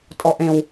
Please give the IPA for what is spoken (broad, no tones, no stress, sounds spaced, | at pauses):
tʼ ɔ ʔ ẽ w